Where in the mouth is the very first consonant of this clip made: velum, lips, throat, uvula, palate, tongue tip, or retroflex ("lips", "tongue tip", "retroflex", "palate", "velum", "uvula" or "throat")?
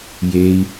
palate